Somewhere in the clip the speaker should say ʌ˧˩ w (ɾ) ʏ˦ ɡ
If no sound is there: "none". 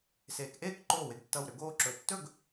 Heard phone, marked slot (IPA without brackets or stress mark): ɾ